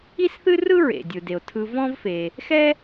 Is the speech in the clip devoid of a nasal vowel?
no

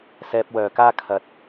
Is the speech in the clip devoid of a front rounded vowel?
no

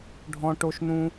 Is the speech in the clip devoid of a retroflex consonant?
no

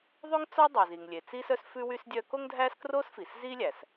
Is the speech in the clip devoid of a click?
yes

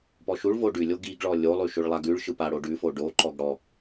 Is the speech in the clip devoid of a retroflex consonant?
no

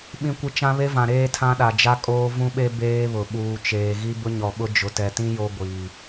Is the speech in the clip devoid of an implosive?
no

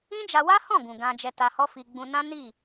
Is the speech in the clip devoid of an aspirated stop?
yes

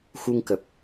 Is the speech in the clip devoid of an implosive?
yes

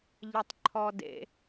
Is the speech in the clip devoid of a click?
no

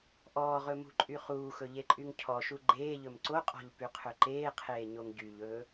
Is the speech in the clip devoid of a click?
no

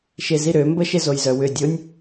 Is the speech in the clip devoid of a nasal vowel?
yes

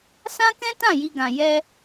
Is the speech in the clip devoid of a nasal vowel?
no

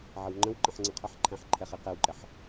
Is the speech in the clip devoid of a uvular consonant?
no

